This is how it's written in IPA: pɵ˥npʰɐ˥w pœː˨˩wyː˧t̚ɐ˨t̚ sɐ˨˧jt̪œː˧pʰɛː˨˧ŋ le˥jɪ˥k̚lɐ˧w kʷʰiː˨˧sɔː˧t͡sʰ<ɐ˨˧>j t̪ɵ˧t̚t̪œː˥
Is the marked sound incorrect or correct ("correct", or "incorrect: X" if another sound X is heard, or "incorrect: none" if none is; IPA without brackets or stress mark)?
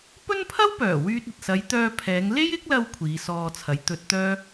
correct